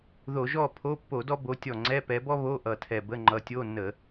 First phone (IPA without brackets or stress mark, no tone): ð